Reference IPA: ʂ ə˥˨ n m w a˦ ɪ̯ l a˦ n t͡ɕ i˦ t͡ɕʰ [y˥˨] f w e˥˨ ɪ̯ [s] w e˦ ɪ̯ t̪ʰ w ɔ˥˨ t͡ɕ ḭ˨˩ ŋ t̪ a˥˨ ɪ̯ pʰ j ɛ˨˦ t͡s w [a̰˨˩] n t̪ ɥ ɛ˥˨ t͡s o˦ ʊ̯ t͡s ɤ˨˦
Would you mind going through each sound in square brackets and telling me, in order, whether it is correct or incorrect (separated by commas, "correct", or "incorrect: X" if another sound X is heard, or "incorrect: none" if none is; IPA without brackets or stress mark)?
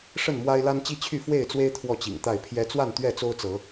correct, incorrect: t͡s, incorrect: a˥˨